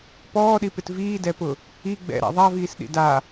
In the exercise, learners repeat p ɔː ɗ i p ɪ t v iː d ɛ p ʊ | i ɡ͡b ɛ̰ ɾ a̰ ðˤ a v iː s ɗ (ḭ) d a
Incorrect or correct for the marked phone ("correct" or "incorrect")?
correct